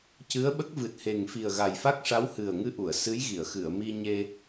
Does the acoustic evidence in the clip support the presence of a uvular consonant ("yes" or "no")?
no